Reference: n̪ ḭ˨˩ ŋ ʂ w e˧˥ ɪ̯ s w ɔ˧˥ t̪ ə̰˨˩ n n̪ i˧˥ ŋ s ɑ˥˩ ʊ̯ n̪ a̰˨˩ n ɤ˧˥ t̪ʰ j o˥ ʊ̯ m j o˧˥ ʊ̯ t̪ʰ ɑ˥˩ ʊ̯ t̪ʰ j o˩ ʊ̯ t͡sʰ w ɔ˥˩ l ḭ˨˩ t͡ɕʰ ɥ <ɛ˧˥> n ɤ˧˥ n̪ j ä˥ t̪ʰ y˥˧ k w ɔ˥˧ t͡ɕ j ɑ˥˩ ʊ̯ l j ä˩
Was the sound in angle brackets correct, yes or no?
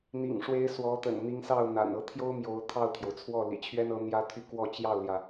no